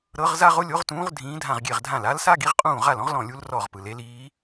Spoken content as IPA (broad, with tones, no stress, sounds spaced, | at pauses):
ɾ ɤ˧˥ ʁ z a˥ ʁ o˥ lʲ o˧˥ ʁ t ũː˧˥ ʁ dʱ ĩː˧˥ dʱ ã˥˩ ʁ ɡʲ e˥˩ ʁ dʱ ã˥˩ l a˧˥ l s a˥ ɡ i˧˥ ʁ qʼ ũː˥˩ ʁ a˥˩ l ɔ̃˥ ʁ l ɔ̃˥˩ lʲ u˧˥ l r ɔ˥˩ ʁ p ɯ˩ l e˧˥ l iː˧˥